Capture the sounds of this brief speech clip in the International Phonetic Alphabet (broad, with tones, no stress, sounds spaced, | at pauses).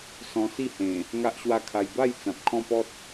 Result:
s ɔ̃˧ s i˥˧ h ẽ˨˩ | ŋ a˦ ʔ ɕ w a˦ kʰ a˧ j b a˥˧ j t͡s ã˨ p̚ kʰ ɔ̃˥˧ p ɔ˦ t̚